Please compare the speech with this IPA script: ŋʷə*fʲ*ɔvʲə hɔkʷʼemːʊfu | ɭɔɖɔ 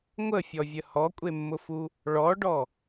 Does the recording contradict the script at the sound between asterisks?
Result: no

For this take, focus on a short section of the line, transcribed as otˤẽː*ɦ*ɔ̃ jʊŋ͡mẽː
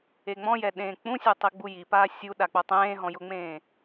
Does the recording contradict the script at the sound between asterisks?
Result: no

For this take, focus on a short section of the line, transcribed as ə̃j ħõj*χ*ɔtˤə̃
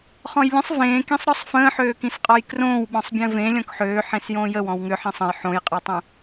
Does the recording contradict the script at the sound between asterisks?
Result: yes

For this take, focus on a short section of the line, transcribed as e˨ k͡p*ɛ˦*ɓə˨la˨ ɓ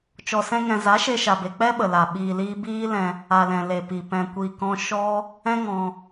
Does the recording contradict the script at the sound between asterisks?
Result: no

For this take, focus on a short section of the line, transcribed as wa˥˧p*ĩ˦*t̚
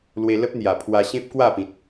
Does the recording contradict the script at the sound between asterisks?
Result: yes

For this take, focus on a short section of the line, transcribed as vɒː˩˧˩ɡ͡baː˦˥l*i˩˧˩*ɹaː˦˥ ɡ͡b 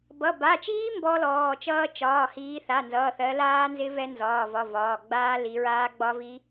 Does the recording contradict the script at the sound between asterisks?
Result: yes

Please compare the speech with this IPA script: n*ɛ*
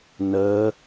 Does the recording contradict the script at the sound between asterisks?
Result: yes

